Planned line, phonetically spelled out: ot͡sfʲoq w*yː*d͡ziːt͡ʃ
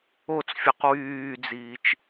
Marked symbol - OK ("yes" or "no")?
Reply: yes